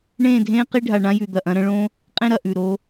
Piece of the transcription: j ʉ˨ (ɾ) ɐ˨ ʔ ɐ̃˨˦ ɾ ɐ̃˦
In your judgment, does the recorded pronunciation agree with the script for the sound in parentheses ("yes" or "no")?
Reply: no